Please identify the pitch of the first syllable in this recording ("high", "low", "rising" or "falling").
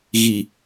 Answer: low